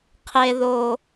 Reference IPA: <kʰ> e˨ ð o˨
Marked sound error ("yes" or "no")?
yes